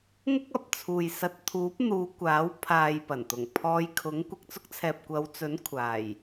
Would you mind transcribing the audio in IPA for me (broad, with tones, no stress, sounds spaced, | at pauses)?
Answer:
ŋ ʊ˥ k̚ ɐ˨ p̚ t͡sʰ uː˨ j s ɐ˨ t̚ t̪ʰ uː˨˥ p̚ n̪ uː˨˧ kʷ aː˨˥ w pʰ aː˨ j p ɐ˨˩ n t̪ ʊ˨˩ ŋ pʰ ɔː˧ j kʰ ʊ˨˥ ŋ kʷ ɪ˨ k̚ t͡s ʊ˥ k̚ t͡sʰ ɛː˨ p̚ kʷ ɐ˨˧ w t͡s ɵ˨˥ n kʷʰ aː˨˩ j